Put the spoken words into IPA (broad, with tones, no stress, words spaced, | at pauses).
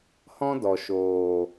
hɔ̃˦dɔ˨ ʃoː˨